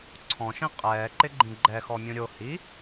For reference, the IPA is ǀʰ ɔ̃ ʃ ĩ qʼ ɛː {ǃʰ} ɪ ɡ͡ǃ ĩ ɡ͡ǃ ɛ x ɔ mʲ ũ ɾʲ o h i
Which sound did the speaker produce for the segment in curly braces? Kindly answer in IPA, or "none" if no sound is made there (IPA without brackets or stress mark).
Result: ǃ